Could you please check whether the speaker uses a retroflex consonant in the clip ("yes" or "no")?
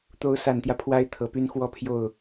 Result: no